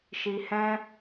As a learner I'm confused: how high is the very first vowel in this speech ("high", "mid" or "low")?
high